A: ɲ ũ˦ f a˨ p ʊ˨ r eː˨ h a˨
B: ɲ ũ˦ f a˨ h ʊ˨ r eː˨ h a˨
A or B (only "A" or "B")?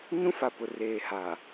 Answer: A